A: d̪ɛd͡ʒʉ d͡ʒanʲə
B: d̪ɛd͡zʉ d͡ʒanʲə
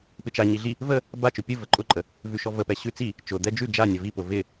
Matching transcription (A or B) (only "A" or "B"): A